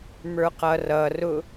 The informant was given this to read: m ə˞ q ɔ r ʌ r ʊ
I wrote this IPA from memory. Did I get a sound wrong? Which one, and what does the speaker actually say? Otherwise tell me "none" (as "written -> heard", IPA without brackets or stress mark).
ɔ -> ʌ